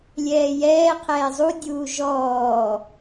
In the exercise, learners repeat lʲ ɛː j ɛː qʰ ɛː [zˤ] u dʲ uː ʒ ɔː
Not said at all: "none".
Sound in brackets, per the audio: zˤ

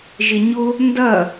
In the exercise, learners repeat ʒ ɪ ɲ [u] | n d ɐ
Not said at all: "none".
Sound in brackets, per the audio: ʊ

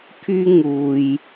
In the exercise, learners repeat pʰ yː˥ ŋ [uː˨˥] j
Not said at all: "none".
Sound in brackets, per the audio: uː˨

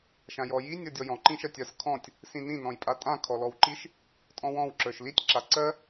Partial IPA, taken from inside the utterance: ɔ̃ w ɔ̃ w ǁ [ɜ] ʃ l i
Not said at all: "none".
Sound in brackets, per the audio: ə˞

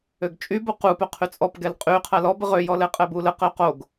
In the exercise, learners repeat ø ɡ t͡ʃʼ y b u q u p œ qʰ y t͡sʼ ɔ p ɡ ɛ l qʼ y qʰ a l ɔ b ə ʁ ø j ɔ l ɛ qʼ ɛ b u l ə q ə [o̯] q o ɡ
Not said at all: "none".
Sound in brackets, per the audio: o̯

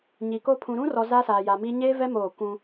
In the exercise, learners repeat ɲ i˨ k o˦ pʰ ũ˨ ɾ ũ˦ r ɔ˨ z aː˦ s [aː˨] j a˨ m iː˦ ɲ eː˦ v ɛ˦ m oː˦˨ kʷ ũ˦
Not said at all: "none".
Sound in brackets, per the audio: aː˨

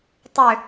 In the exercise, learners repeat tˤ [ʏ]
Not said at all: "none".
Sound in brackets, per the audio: ʏ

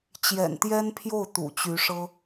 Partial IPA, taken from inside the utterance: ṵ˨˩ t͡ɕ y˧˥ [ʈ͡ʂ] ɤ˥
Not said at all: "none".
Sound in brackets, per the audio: ʂ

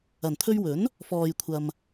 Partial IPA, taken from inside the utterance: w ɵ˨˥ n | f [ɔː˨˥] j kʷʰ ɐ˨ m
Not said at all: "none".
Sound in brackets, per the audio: ɔː˨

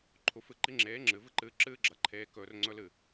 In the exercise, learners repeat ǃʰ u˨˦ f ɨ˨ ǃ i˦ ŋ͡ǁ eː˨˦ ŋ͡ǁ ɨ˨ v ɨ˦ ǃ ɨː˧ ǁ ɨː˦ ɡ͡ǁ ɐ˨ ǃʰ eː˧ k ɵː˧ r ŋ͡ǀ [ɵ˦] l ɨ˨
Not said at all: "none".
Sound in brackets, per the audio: ɵ˦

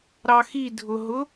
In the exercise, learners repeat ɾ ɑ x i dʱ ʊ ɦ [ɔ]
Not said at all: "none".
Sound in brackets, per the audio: ʊ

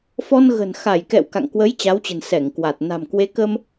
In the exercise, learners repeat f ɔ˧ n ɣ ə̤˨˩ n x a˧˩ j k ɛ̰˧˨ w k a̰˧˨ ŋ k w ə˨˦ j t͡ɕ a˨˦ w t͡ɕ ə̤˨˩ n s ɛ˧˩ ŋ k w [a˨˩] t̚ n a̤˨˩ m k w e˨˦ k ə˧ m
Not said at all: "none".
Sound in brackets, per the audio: a˨˩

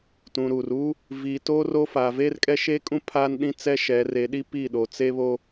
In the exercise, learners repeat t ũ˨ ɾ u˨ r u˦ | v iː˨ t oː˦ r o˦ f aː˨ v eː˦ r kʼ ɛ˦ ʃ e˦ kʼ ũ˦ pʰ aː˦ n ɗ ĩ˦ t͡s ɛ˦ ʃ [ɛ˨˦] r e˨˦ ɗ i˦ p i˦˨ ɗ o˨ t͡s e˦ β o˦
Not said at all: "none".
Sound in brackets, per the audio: ɛ˨˦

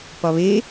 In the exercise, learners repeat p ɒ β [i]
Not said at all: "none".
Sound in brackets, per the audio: e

